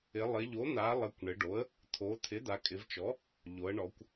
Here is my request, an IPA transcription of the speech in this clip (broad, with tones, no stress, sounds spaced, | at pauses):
ɪ˩˧ lˠ ɪ˩˧ ʎ o˩˥ n̪ a˩˧ lˠ ɪ˩˧ kʷ ɳ ɪ˩˧ ɖ o˩˥ ə̯ | t̪ʰ o˩˧ t̪ʰ ɪ˩˥ d̪ a˩˧ kʼ ɪ˩˧ v t͡ʃ ɔ˩˥ | ʎ o˩˧ ə̯ ɳ ɔ˩˧ kʷ